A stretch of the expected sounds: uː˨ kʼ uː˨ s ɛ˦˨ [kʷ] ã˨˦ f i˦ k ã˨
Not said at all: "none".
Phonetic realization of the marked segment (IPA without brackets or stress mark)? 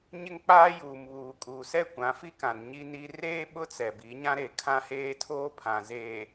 kʷ